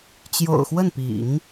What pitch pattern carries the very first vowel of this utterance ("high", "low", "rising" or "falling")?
low